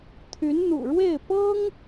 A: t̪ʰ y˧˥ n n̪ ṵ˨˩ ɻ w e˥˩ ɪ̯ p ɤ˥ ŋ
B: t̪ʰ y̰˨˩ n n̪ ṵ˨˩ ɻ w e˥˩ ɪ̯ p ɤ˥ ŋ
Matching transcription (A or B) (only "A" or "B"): A